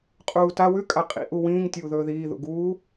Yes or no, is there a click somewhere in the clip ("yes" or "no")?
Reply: no